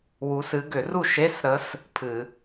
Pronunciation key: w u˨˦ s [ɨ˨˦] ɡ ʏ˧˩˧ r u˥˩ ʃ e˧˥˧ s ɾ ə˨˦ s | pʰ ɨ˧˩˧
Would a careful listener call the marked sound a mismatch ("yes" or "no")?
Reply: no